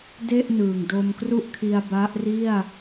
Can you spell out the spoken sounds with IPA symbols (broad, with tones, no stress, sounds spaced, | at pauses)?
d e˥˩ ʔ n ɯː˨˩ ŋ d o˧ m k r u˥˩ ʔ kʰ i˧ a̯ b a˦˥ ʔ r i˥˩ a̯